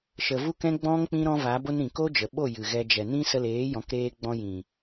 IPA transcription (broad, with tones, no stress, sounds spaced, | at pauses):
ʃ ə˨ v u˦ k ɛ̃˦ ɡ͡b ɔ̃˦ ŋ k͡p ĩ˦ ɾ ɔ̃˦ v a˨˦ b o˦ n ɾ ĩ˨ k o˦ d͡ʒ ə˨ ɓ o˦˨ j ɨ˨ ɣ ɛ˧ d͡ʒ ɛ˨ n ĩ˦ s ə˧ l eː˨˦ j ɔ̃˨˦ k ɾ eː˧ ɡ͡b ɔ̃˧ j ĩ˨